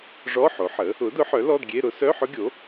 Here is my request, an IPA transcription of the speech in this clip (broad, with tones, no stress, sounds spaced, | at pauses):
ʐ ɔ˧˥˧ ħ o˩˥ ħ ə˩˥ | ʊ˩˥ d ʊ˩˥ ħ œ˩˥ l ɔ˧˥˧ d ɡʲ e˧˥˧ ɾ ʊ˦˥ s œ˧˥˧ ħ ʊ˦˥ ɡʲ o˩˥